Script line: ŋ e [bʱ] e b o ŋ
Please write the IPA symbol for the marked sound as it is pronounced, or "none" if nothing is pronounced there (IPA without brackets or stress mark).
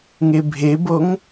bʱ